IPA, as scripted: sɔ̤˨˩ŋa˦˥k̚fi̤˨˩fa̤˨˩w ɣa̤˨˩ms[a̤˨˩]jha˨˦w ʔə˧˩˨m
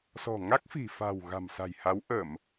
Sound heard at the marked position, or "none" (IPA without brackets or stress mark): a̤˨˩